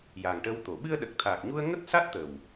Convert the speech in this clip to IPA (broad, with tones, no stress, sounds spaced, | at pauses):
j a˨˩ ŋ ʈ ə˧ w t̪ o˨˩˨ ɓ ɨ˧ ə̯ ɗ ə˨˩ k̚ t̪ʰ aː˨˩ k̚ ɲ u˧ ə̯ ŋ ə˦˥ k̚ s a˦˥ t̚ t̪ ə˨˩ w